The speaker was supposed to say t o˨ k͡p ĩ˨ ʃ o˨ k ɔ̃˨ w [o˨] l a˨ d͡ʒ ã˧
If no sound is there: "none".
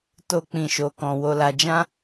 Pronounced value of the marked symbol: o˨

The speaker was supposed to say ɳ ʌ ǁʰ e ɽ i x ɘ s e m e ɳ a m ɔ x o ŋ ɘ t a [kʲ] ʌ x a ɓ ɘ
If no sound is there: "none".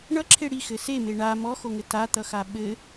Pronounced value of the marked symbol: t̪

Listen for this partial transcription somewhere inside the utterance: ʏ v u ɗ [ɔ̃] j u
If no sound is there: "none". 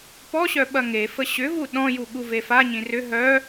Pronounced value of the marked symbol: ɔ̃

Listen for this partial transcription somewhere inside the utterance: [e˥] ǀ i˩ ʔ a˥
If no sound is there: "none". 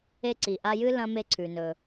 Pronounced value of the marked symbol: e˥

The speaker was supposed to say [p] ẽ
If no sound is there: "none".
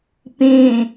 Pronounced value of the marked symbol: p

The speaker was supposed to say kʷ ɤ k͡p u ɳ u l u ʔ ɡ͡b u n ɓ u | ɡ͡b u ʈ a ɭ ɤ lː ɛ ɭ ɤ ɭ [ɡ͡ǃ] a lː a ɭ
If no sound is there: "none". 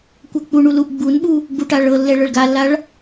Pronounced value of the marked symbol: ɡ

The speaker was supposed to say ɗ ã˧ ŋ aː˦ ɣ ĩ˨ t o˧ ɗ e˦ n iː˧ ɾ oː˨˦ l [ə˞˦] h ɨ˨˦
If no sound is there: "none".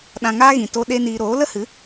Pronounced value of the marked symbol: ə˦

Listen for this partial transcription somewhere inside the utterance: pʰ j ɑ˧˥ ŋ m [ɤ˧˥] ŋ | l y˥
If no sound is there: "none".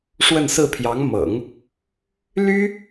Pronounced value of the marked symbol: ɤ̰˨˩˦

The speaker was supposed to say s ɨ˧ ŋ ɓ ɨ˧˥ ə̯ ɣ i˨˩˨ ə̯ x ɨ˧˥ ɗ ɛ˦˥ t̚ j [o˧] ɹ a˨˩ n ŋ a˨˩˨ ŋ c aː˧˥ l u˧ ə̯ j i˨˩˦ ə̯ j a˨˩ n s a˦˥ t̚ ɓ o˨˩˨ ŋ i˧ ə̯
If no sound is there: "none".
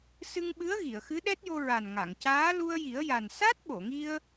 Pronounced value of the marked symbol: o˧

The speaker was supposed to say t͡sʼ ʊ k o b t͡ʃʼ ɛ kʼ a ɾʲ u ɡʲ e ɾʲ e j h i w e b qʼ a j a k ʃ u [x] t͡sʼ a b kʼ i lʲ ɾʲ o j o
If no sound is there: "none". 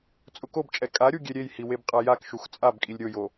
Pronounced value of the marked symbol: x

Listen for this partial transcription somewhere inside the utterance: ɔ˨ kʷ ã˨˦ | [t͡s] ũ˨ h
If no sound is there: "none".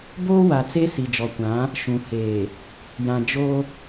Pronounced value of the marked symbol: ʃ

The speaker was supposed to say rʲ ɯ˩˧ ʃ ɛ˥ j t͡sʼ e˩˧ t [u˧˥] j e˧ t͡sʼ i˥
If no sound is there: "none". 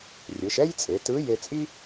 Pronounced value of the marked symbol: ɯ˧˥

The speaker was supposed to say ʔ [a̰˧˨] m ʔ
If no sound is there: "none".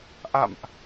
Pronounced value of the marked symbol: a̰˧˨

